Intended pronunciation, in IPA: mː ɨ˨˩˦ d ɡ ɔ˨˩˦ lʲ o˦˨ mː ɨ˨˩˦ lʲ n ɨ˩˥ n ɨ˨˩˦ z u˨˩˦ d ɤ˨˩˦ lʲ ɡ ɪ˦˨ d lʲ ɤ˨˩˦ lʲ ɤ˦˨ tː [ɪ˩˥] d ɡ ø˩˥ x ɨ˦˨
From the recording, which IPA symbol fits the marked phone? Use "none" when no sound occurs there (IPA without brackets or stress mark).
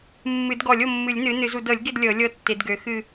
ɪ˨˩˦